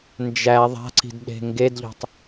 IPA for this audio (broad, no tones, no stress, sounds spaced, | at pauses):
n d͡ʒ æ ðˤ a̤ ǀ i̤ d ɗ e̤ ŋ ɡ e d ʎ ɔ̤ tˤ